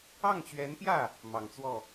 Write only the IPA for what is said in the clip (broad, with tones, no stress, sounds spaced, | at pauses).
ɑ˥˩ ŋ t͡ɕ ɥ ɛ˧˥ n p j ä˥˩ | m ɑ˨˩ ŋ t͡s w ɔ˥˩